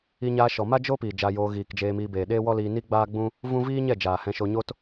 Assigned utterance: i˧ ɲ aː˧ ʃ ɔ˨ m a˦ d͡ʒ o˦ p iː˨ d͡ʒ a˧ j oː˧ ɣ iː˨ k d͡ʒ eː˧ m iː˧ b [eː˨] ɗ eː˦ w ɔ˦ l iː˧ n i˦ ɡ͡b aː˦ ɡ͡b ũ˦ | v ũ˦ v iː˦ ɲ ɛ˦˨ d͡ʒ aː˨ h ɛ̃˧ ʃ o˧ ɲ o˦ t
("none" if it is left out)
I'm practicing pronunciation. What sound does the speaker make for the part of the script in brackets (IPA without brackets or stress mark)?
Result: eː˨